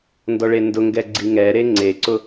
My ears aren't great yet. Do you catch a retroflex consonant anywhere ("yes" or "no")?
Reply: yes